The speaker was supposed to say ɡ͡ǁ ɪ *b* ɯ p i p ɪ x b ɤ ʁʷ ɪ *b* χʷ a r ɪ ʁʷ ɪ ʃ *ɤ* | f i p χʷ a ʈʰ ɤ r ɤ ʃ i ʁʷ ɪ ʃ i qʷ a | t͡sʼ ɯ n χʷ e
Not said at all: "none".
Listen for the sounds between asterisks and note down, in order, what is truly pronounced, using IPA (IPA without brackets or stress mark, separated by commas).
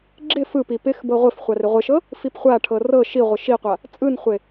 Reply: f, f, ɤ